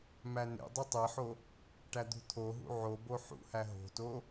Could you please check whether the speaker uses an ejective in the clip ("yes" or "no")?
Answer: no